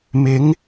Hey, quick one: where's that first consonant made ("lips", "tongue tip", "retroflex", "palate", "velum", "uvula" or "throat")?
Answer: lips